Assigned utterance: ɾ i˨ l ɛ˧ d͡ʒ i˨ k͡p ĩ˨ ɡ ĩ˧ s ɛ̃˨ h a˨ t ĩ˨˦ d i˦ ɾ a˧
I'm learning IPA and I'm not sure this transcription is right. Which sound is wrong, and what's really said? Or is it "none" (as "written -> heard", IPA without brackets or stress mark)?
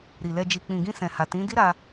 none